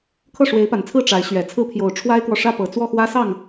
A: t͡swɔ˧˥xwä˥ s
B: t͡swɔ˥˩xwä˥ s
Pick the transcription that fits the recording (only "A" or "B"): B